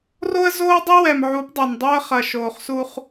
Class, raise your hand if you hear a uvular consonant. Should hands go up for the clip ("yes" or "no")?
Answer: yes